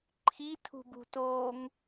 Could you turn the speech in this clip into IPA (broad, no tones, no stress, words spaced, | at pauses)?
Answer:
ǃʰitʰṳbṳtoːŋ